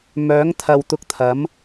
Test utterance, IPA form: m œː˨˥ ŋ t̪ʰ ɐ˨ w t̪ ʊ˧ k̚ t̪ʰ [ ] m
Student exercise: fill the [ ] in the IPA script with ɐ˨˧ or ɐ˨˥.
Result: ɐ˨˥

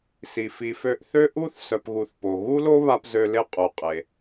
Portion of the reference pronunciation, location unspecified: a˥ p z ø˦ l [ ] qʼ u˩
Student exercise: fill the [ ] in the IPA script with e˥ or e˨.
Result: e˥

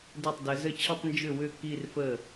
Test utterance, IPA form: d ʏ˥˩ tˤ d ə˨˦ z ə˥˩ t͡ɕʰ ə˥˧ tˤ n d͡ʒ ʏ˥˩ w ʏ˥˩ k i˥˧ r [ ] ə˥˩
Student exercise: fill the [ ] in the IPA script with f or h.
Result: f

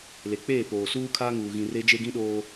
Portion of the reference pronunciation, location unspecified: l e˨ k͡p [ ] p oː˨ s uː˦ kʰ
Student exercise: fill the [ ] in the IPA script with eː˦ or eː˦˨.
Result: eː˦˨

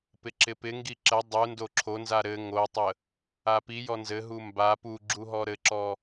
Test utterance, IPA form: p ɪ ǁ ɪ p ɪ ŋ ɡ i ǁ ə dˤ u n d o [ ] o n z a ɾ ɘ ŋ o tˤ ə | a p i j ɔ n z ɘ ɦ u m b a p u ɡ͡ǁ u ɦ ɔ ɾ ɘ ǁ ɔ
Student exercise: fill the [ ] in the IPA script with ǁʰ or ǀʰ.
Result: ǁʰ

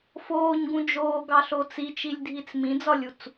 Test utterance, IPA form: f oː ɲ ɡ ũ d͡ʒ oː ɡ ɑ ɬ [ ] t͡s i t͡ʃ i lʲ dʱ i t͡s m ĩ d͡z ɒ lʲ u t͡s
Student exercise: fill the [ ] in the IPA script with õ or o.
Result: o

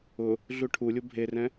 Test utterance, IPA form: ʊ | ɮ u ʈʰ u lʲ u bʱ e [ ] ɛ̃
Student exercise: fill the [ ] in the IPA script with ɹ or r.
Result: r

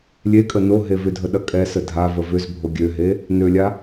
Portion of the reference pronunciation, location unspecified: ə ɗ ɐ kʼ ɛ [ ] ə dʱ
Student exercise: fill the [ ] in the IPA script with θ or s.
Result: s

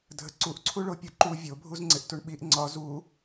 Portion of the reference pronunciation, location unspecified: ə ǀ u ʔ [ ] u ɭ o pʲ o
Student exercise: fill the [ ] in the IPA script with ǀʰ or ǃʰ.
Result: ǀʰ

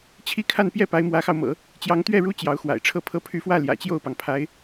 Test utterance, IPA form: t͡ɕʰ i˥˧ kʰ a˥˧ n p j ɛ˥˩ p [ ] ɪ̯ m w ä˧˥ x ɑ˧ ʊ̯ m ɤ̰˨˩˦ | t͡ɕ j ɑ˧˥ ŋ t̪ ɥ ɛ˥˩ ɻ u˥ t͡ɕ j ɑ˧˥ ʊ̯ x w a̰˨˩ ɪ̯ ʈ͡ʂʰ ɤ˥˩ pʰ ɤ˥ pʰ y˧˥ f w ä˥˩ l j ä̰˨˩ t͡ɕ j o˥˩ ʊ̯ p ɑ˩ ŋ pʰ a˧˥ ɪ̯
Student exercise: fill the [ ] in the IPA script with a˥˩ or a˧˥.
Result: a˧˥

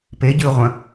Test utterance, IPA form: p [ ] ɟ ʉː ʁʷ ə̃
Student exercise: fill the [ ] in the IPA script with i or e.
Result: e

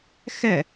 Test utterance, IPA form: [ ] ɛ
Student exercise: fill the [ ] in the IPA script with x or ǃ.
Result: x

